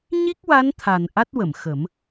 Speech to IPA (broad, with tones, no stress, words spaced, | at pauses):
ɲi˦˥k̚wa˧˥nt̪ʰa˨˩n ʔa˦˥t̚wə˨˩˨m xə˨˩˦m